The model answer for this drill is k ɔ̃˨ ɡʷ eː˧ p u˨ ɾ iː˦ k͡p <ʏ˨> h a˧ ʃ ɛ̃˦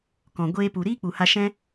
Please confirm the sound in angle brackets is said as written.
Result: no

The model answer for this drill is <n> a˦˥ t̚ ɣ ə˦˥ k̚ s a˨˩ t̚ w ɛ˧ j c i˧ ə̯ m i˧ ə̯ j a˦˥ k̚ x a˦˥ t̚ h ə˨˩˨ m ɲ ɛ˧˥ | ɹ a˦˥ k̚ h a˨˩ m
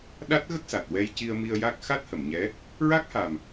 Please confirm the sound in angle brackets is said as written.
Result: no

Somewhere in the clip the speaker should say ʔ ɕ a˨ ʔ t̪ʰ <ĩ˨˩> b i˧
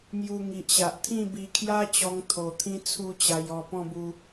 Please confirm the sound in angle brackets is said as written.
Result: no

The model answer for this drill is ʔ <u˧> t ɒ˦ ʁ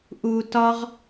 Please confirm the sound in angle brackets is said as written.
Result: yes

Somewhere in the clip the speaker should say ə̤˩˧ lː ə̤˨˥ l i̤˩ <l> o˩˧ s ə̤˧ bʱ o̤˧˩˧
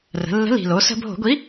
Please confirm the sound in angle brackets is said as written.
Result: yes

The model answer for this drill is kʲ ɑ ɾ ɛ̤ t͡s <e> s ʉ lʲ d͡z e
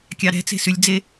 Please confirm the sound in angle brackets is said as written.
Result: no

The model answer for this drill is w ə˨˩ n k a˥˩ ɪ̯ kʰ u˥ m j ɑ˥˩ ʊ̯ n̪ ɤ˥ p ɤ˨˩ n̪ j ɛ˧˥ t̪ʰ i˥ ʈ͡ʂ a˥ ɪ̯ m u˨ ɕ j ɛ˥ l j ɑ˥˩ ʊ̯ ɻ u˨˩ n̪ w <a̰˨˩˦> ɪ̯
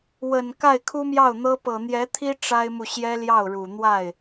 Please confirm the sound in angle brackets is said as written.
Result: no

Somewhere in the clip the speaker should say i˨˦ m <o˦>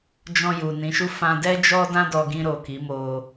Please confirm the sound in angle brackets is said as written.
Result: yes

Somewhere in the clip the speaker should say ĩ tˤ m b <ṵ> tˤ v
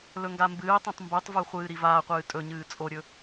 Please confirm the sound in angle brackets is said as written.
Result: no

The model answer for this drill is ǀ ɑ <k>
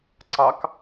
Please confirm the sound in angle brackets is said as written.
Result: yes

